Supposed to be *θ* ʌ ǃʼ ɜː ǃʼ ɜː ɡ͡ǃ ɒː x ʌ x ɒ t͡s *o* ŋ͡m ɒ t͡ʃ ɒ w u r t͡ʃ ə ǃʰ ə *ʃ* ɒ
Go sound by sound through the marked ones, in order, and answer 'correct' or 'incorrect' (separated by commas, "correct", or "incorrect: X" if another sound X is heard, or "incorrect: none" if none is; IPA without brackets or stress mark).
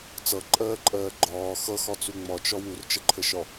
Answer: incorrect: t͡s, incorrect: u, correct